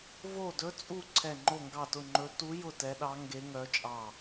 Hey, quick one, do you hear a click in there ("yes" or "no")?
yes